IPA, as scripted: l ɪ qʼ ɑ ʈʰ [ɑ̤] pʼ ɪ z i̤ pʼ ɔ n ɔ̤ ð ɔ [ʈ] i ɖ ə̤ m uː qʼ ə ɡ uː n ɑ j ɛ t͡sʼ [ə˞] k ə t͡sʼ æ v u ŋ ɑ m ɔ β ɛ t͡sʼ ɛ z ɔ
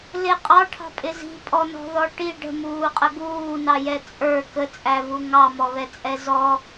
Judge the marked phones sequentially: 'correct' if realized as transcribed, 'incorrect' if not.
correct, correct, correct

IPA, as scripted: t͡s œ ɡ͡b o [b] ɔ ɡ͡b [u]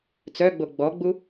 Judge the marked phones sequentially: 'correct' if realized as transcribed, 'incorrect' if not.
incorrect, correct

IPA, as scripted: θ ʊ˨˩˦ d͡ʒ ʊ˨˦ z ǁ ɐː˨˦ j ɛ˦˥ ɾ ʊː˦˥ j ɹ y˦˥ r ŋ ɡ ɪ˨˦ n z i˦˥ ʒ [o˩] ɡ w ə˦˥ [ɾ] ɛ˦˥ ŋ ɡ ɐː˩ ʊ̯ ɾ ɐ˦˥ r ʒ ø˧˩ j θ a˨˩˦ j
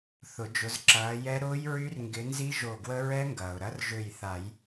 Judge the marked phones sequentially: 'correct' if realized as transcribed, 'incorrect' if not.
incorrect, incorrect

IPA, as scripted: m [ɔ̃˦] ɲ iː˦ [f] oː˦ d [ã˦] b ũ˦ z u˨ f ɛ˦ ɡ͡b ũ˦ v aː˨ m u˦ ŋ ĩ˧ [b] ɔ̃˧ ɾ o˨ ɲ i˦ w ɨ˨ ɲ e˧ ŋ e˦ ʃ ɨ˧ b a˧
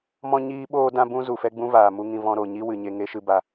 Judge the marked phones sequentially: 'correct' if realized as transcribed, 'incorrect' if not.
correct, incorrect, correct, incorrect

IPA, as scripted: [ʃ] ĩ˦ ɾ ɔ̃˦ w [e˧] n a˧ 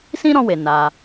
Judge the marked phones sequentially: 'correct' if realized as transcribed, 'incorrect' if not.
incorrect, correct

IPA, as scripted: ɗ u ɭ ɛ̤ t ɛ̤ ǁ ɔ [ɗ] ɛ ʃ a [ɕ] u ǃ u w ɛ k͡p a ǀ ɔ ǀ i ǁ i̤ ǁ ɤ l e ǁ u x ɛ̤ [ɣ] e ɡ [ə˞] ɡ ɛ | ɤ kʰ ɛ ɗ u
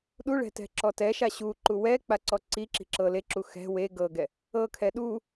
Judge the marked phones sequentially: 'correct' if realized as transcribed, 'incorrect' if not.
incorrect, correct, incorrect, incorrect

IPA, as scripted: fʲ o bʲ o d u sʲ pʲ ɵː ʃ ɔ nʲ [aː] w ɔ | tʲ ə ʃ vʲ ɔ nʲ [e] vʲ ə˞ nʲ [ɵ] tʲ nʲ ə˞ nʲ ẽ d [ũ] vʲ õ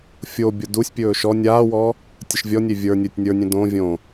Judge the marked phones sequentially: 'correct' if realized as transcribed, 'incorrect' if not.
correct, correct, correct, incorrect

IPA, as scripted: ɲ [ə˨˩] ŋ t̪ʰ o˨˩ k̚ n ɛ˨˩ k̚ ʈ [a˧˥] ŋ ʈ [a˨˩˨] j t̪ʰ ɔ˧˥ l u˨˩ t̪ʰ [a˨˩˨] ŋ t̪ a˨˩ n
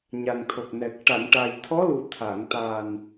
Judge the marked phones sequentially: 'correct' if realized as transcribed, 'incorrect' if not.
incorrect, incorrect, incorrect, correct

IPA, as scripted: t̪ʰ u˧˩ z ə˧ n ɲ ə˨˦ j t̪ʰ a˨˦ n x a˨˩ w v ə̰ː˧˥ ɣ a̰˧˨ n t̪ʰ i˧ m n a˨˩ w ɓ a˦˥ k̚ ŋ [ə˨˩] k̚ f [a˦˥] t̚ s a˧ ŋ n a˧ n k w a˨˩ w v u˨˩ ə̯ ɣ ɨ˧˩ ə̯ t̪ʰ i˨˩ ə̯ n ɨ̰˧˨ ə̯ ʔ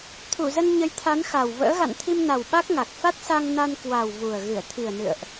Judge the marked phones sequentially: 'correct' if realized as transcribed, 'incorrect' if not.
incorrect, correct

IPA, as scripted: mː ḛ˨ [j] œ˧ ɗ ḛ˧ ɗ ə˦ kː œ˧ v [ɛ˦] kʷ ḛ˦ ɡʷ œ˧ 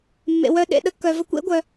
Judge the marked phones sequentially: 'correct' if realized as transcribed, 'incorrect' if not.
incorrect, incorrect

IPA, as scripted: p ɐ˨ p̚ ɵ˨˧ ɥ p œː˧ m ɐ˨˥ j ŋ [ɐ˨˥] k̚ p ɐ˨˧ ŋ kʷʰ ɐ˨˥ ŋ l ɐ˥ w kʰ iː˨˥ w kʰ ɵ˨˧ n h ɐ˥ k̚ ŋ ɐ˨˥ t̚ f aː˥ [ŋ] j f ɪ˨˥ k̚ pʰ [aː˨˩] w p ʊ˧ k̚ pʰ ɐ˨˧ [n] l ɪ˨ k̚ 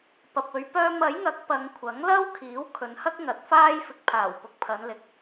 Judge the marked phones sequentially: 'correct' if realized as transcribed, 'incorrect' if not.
correct, incorrect, correct, correct

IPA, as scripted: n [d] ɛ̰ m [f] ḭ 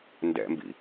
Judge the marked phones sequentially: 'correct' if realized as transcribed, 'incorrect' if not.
correct, incorrect

